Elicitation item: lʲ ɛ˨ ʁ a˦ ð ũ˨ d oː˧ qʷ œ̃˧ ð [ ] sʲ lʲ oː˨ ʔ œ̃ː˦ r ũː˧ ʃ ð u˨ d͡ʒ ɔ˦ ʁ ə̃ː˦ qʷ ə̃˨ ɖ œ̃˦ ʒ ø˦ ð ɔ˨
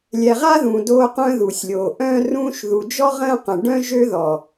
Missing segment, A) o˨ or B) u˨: B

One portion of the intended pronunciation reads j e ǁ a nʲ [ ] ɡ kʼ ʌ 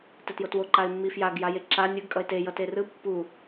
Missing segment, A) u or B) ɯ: B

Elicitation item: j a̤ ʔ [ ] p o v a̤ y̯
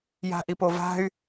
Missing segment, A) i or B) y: A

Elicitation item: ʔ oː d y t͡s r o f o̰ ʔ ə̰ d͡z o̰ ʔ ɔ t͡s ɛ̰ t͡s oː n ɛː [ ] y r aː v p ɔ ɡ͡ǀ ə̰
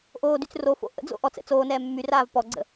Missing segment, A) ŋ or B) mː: B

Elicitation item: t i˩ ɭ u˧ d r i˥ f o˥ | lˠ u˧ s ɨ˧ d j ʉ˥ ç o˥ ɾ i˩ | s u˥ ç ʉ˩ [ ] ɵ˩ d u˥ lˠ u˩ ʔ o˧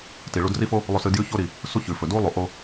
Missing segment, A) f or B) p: A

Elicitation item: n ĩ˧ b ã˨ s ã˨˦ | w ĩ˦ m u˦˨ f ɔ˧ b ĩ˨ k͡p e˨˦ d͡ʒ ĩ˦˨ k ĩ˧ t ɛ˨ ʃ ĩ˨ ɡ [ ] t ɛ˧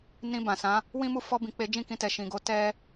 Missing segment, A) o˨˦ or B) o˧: A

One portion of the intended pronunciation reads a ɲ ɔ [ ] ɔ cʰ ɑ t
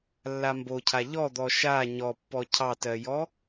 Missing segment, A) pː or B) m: A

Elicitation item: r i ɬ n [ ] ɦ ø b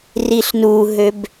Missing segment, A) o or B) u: B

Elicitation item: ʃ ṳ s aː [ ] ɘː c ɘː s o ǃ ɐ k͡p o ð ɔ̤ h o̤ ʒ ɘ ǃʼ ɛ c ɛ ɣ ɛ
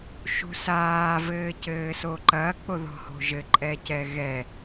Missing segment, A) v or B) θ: A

